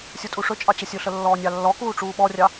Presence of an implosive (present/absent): present